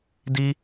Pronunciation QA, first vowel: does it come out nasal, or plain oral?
oral